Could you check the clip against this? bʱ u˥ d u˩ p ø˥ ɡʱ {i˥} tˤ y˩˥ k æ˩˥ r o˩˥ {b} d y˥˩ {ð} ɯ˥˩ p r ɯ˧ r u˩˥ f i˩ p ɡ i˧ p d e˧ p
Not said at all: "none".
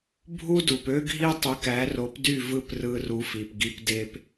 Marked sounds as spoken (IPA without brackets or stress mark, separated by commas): i˥, p, v